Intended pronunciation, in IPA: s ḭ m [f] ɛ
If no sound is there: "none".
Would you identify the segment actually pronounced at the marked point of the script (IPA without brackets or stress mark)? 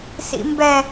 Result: b